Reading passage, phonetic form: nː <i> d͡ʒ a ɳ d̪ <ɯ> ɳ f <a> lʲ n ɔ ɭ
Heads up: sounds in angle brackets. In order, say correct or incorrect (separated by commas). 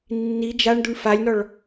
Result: correct, incorrect, correct